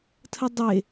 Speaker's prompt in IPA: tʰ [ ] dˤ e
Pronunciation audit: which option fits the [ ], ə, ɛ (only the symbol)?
ə